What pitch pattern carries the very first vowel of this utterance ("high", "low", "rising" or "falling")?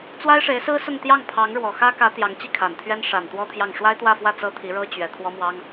high